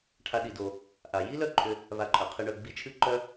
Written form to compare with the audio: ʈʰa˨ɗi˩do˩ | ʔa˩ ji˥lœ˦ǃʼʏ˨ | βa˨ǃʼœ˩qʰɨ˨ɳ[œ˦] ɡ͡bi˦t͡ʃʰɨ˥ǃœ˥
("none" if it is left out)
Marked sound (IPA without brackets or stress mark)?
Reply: œ˨